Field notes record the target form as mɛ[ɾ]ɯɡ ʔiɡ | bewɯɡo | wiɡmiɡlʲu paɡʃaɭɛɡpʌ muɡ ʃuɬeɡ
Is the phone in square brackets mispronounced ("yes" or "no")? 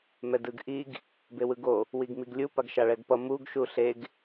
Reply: yes